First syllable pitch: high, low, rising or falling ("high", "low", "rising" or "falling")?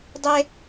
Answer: high